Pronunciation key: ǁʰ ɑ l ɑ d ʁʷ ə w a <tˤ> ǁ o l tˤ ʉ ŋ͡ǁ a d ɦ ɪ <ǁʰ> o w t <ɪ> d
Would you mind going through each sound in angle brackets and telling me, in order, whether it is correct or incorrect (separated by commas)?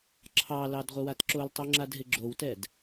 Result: incorrect, incorrect, incorrect